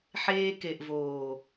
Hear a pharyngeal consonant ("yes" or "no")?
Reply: yes